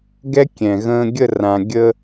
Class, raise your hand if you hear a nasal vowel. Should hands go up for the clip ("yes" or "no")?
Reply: yes